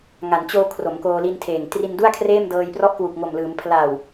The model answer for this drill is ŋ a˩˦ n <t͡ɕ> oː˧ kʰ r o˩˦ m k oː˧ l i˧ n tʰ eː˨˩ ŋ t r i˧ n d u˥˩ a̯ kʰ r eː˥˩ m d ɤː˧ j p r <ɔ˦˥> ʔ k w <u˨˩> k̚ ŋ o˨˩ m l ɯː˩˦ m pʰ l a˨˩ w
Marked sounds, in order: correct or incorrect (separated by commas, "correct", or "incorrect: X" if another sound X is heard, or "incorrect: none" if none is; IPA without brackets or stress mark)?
correct, correct, correct